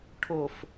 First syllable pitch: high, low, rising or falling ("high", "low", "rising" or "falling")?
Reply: low